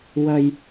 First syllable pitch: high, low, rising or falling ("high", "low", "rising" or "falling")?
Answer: low